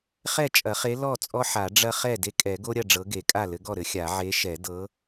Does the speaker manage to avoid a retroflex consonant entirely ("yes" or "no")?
no